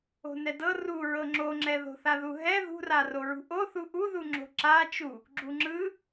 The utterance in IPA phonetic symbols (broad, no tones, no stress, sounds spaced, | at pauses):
o̤ n ɛ d ɤ r u ɹ ɤ ŋ͡ǁ o ŋ͡ǁ ɛ ð o̤ θ a ð u ɦ ɛ ð ṳ r a r o ɹ ṳ ʔ o θ u ʔ u ð u ŋ͡ǁ o̤ ǁ a t͡ʃ u | ɡ͡ǁ u ŋ͡ǁ ɯ